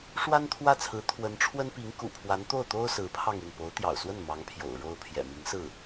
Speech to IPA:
ʂ w a˥ n t̪ʰ w ä˥˩ t͡sʰ ɹ̩˧˥ t̪ʰ w ə˧˥ n ʈ͡ʂʰ w ə˥ n p i˧˥ ŋ k ṵ˨˩ pʰ w a˧˥ n t̪ o˥˩ ʊ̯ t̪ o˥ ʊ̯ s ɹ̩˧˥ pʰ ɑ˥˧ ŋ i˥˩ n p o˧˥ ʊ̯ t̪ j ɑ̰˨˩ ʊ̯ s w ə˥˩ n m ɑ˧˥ ŋ pʰ j o̰˨˩ ʊ̯ ɻ o˥ ʊ̯ pʰ j ɛ̰˨˩ m i˧˥ ŋ s ɹ̩˥˩

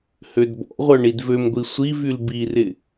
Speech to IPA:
h ø d b ɔ̰ ʁʷ œ ɳ i d v ø m ɡʷ i sʷ i v y l b i r ɪ

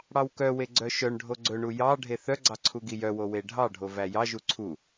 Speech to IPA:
ɽ ɑ w k œ w e ɡ͡ǀ œ ʃ œ ɳ ɖʱ o ɡ͡ǀ ɵ ɳ u j ɑ ɖʱ e θ œ ɡ͡ǀ ɑ ǀʰ u ɡ i j œ w o w e ɖʱ ɑ ɖʱ o v æ j ɑ ʒ u ǀʰ u

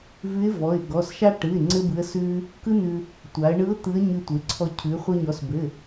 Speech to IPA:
v ʉ˧˥ ɪ̯ v ɔ˩˧˩ ɪ̯ ɡ ɔ˩˧˩ s ʃ a˥ ʈ ɯ˩˧˩ ɪ̯ ŋ͡ǀ ɘ˥ b ɯ˧˥ ə̯ s ʉ˥ | k ɯ˥ n̪ ʉ˧ | tʷ a˩˧ ə̯ ɳ ɯ˧˥ ʊ̯ t̪ ɯ˧˥ ə̯ ɲ ʉ˧ tʷ e˩˧ ǀʰ ɔ˧ cʰ ʉ˩˧ χʷ ɘ˧ ɲ ɔ˩˧ s b ɘ˩˧˩

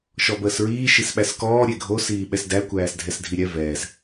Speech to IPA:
ʃ ɔ b əː s ɹ iː ʃ i s ɓ æ s k ɔː ɾʲ e ɡʱ o s iː ɓ ɛ s d æ kʷ æː s dʱ ɛ s dʱ i ɾʲ ɛ v ɛː s

